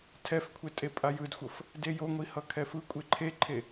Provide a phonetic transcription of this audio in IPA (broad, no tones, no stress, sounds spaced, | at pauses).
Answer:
tʰ ɛ f kʷʰ e tʼ e pʼ a j ɯ d xʷ ʌ f | d e j o ŋʷ i h ʌ kʰ ɛ f ɯ kʷʼ e ǃʰ e ǃʰ e